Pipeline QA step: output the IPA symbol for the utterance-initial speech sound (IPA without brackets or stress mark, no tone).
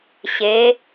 ɕ